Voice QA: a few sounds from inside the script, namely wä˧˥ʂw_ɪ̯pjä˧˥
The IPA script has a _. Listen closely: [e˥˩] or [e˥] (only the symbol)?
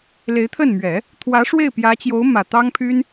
e˥˩